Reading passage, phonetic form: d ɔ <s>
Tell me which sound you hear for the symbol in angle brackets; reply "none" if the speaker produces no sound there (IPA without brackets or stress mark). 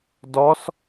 s